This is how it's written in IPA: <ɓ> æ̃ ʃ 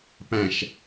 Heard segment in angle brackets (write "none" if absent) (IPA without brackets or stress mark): p